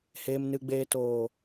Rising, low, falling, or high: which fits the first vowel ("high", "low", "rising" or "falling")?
low